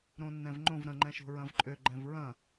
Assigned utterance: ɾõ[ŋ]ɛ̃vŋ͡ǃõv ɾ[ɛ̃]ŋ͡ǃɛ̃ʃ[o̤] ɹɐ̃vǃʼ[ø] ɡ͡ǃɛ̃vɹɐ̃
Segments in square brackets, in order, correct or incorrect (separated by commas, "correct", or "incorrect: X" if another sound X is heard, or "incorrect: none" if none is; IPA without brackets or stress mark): incorrect: nː, incorrect: ə̃, correct, correct